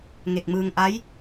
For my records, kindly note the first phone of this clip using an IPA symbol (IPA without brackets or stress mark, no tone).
ŋ